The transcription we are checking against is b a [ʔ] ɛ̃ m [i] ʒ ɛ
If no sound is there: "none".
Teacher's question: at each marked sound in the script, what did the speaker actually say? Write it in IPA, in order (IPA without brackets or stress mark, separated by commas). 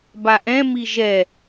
ʔ, i